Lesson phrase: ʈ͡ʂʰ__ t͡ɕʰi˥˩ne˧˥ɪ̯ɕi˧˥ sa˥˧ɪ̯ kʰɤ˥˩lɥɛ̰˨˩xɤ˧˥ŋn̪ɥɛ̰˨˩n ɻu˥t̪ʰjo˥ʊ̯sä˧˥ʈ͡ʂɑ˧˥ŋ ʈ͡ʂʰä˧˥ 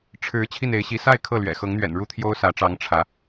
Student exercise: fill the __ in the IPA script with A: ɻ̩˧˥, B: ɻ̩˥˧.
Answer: A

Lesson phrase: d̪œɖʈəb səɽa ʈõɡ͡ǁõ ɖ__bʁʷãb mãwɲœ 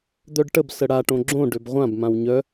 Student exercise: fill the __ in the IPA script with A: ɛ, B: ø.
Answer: B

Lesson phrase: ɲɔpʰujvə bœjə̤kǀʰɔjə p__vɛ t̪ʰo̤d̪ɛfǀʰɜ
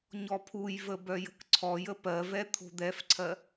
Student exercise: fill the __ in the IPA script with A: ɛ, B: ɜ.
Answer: B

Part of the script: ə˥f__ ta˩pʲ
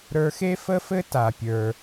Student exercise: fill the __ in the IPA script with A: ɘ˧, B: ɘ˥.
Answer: B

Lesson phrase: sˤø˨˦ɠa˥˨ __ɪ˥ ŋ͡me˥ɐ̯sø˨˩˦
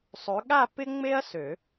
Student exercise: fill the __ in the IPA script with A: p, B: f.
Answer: A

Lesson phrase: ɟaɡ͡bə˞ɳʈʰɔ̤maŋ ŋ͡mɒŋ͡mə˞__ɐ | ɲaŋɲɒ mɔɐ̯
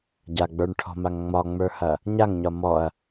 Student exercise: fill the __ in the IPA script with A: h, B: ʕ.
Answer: A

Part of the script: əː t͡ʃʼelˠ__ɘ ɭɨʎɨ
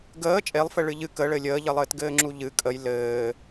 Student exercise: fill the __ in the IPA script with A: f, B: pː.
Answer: A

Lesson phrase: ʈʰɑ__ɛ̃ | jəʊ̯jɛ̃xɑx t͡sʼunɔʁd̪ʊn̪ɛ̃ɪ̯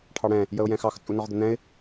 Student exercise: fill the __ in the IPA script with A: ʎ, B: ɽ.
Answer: B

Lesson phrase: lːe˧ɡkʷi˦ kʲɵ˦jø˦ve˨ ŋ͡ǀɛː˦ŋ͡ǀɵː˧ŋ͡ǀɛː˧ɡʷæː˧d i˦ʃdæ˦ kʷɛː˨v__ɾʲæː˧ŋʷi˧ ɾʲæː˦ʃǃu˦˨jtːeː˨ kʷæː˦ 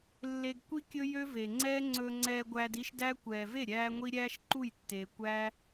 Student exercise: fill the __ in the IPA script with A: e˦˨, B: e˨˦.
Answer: A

